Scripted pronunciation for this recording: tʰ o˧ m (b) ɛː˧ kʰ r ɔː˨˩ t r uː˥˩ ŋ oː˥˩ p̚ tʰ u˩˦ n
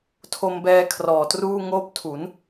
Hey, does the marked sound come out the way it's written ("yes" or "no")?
yes